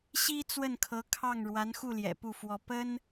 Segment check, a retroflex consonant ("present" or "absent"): present